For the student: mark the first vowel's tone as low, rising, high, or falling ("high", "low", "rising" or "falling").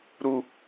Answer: low